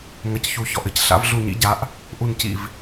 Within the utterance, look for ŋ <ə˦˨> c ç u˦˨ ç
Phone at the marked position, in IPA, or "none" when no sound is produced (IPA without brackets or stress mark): ɐ˦˨